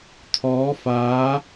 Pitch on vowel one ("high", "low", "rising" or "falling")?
rising